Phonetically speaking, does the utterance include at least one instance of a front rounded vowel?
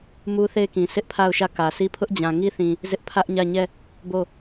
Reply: no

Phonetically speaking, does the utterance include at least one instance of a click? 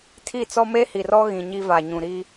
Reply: no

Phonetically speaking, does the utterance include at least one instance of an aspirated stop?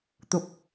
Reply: no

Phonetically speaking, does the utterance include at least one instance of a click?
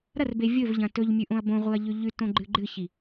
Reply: yes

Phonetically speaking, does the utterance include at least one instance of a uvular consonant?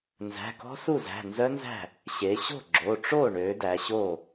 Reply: no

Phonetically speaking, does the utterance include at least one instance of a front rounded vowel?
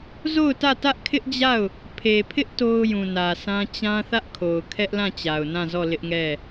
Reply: no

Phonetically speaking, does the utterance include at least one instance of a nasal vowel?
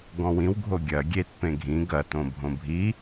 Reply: yes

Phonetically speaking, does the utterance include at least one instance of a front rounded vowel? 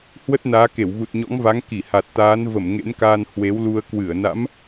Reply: no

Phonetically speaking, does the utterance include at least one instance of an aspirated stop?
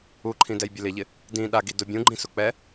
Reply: yes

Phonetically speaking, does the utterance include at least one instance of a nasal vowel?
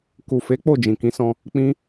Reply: yes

